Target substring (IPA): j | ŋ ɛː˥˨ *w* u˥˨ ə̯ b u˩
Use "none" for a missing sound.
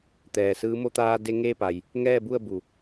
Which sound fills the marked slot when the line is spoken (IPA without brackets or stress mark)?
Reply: b